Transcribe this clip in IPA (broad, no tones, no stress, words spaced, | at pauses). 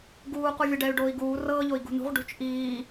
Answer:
ɡuːquvʲə ɖɛy̯ɖoːi̯ɡuː rɤːʎoi̯ ɡṳnṳʁ ɖṳt͡ʃ ʔiː